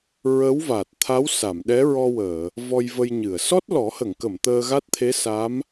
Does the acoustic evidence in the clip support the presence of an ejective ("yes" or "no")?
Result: no